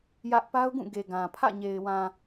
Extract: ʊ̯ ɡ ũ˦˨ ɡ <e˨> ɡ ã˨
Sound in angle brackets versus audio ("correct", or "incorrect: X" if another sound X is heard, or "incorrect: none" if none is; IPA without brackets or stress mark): correct